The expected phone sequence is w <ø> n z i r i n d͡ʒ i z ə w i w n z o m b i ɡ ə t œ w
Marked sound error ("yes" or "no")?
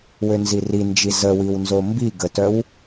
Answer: no